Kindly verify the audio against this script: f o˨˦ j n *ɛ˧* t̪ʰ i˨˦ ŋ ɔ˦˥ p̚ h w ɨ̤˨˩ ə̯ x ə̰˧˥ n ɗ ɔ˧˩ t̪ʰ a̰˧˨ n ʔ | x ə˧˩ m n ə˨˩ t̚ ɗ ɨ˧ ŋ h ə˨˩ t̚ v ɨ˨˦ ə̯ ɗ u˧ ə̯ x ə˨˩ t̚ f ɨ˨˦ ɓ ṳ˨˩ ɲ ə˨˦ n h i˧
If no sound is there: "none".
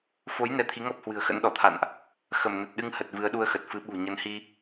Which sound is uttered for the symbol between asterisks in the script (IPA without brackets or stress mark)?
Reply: ɛ˧